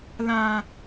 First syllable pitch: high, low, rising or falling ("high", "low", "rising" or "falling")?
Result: low